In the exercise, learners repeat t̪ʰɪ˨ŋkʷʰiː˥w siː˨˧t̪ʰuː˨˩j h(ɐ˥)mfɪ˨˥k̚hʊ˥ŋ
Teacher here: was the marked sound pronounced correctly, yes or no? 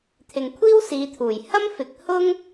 yes